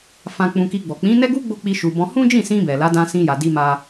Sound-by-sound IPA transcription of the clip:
f ã˧ k͡p ũ˧ k i˧ ɡ͡b ɔ˨ k͡p ĩ˨˦ n ɛ˦ ɡ u˦ ɡ͡b o˦˨ k͡p i˧ ʃ u˨ b ɔ̃˧ h ũ˦ d͡ʒ ĩ˦˨ s ĩ˧ b ɛ˨ l a˨˦ d ã˧ s ĩ˧ j a˨ d i˧ m a˧

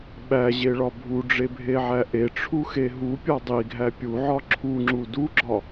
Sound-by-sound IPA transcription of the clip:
ɓ æ ʑ e ɭ ɒ bʱ u ɖ͡ʐ e bʱ e ʕ æ ʔ e ʈ͡ʂʰ u x e ɦ u pʲ ɒ dˤ i ɡʱ æ pʲ u ʕ ɒ ǁʰ u ŋ͡ǁ u d u ɡ͡ǁ ɒ

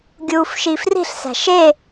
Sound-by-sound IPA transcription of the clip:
ɡʲ uː f ʃ i f r i̤ ɬ s æ̤ ʃ e

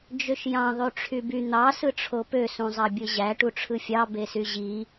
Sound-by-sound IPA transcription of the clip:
d͡ʒ ø ʃ j ɑ̃ ðˤ y ʈ͡ʂʰ y b y n̪ ɑ s ɯ ʈ͡ʂʰ o p ø s ũ zˤ ɑ bʲ ɯ ʑ æ ʈ u ʈ͡ʂʰ ɯ fʲ ɑ b e s y ʑ i

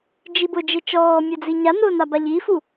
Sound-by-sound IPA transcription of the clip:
d͡ʒ i b ʊ d͡ʒ e t͡ʃ ɔː mʲ ɛ d͡z i ɲ a n ʊː n a b a ʎ i f u

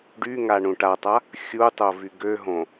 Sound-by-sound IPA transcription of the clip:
ɖ y ŋ a ɳ ũ ʈ a tˤ a | xʲ u tˤ o v y ɡ ø ɦ õ

